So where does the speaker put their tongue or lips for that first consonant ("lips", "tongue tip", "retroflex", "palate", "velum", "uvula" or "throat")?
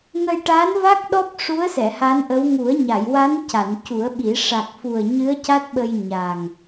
velum